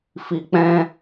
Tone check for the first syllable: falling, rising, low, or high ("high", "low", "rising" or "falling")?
low